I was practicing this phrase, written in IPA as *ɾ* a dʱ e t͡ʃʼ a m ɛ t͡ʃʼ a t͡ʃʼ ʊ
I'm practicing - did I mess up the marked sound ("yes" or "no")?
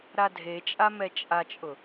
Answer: no